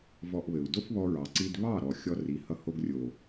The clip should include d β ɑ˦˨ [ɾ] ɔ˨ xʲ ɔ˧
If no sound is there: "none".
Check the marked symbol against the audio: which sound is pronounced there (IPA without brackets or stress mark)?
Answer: ɾ